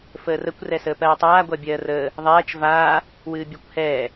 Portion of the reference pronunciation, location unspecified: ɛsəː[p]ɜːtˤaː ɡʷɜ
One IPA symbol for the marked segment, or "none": p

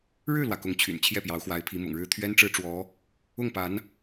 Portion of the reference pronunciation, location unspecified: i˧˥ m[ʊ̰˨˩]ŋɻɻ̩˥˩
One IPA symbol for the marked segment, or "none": ʊ̰˨˩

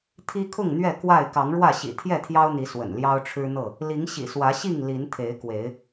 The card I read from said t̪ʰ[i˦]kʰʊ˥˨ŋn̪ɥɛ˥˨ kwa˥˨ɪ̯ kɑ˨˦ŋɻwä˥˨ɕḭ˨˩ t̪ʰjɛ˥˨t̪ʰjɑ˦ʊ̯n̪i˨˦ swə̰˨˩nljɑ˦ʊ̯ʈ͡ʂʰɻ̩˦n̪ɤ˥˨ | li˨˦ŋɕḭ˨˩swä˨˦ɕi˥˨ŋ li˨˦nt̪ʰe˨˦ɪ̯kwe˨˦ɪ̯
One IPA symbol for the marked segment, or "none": i˦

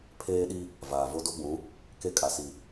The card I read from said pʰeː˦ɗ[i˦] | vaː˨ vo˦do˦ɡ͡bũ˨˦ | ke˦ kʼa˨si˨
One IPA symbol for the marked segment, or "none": i˦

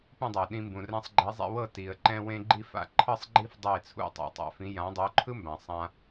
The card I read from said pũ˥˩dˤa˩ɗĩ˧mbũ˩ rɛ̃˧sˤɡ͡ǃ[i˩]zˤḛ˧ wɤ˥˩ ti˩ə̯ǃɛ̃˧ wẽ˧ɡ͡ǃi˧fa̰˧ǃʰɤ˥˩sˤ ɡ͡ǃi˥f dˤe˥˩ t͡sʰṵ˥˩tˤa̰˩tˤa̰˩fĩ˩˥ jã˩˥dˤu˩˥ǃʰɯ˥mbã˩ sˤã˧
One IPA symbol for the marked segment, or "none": i˩˥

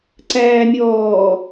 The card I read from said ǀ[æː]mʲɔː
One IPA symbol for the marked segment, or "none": æː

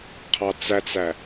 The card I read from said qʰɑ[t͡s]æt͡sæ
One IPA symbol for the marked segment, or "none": t͡s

